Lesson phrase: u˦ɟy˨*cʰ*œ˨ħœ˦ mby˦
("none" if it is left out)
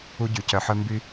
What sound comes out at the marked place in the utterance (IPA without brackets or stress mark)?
c